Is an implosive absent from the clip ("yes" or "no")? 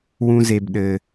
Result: no